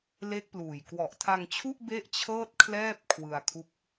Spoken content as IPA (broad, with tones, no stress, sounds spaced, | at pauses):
l e˦˥ k̚ p l uː˨˩ j k w ɔ˨˩ ʔ tʰ a˧ ŋ t͡ɕʰ u˥˩ ʔ b e˥˩ ʔ t͡ɕʰ ɤː˥˩ t̚ kʰ l ɛː˥˩ p̚ kʰ w ɯ˧ a̯ kʰ u˦˥ k̚